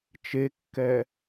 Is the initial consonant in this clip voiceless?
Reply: yes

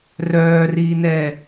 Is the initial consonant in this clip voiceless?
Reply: no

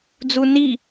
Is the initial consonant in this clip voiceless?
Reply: no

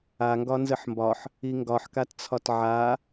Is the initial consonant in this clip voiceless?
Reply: no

